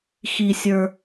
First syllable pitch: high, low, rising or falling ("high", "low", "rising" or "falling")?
low